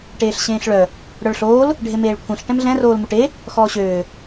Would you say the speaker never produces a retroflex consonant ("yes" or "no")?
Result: no